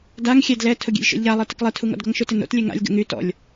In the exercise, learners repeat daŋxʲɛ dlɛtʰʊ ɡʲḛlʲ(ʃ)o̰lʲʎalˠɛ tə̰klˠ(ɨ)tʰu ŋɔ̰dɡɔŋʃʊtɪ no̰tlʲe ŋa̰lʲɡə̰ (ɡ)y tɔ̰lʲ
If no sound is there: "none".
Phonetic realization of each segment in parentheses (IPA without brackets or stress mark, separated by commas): ʃ, ɛ, ŋ